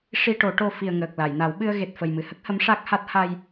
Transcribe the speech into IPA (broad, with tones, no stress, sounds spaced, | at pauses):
ʂ i˧ ʈ o˨˩˦ ʈ o˧ f i˨˩ ə̯ ŋ əː˨˩ k̚ l a˨˩˨ j n a˨˩˦ w ɓ ɨ˧ ə̯ ɣ e˨˩ t̚ f ə˨˩ j m ɨ˨˩ h ə˦˥ k̚ h ə˧˥ m ʂ a˦˥ k̚ h a˦˥ t̚ h a˧ j